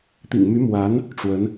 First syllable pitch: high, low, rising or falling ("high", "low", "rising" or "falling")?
low